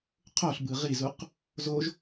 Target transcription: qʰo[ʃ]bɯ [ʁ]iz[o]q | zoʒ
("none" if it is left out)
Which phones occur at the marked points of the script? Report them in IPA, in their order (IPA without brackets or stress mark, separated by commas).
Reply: ɬ, ʁ, u